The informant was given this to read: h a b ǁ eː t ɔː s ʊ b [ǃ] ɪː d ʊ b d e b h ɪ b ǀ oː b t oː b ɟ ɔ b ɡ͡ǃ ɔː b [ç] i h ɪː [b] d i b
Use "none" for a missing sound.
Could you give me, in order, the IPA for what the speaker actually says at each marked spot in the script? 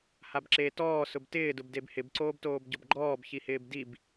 t, ç, b

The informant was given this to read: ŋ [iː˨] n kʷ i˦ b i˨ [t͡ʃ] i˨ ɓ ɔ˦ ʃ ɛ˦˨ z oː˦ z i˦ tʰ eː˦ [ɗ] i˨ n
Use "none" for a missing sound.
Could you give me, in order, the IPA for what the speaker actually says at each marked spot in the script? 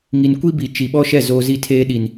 i˨, t͡ʃ, ɗ

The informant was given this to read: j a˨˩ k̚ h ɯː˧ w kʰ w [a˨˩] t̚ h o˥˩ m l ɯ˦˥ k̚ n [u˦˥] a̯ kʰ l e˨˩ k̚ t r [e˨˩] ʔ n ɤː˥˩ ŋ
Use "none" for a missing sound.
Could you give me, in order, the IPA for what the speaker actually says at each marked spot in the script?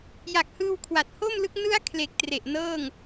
a˨˩, ɯ˦˥, e˨˩

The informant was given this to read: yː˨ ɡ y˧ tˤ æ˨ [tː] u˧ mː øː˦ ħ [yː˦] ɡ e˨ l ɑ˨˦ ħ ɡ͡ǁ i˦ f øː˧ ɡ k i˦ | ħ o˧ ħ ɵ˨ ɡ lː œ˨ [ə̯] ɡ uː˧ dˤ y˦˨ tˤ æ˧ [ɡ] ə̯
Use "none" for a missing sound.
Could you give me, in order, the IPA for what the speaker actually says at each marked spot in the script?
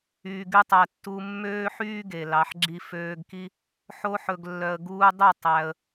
tː, yː˦, ə̯, none

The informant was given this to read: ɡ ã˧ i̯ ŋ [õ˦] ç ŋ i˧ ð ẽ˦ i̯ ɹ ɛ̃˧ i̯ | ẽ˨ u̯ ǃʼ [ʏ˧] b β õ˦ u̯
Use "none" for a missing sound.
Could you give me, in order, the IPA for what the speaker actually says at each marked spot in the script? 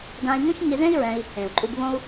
õ˦, u˧

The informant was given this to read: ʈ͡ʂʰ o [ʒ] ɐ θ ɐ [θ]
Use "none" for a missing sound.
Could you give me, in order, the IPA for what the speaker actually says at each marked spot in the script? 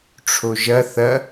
ʒ, none

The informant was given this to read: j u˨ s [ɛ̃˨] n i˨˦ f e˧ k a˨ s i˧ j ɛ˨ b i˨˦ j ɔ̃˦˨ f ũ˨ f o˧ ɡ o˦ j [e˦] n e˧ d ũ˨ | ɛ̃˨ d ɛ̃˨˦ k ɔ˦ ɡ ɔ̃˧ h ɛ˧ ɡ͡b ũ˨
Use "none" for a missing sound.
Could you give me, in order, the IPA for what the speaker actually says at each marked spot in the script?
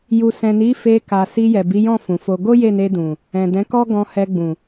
ɛ̃˨, e˦˨

